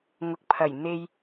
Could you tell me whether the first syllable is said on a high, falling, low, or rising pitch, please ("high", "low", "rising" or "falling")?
low